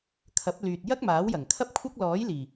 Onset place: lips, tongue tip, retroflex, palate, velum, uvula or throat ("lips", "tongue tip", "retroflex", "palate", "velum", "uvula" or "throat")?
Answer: velum